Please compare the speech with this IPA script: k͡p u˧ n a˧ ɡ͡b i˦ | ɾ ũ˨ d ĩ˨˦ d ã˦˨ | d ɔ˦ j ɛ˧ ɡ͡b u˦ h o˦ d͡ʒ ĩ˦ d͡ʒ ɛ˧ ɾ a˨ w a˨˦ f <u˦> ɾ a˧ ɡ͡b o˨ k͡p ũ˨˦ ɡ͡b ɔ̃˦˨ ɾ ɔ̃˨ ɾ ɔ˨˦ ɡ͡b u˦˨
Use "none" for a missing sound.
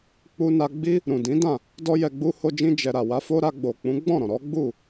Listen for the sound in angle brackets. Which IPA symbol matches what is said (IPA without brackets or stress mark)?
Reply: o˦